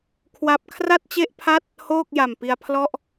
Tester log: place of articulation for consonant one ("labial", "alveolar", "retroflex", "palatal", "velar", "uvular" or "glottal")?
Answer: velar